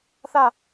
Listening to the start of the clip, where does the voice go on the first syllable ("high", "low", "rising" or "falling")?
falling